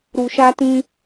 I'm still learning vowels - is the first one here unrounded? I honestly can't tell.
no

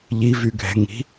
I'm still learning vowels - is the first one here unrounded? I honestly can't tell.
yes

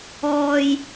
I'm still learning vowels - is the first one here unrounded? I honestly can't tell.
no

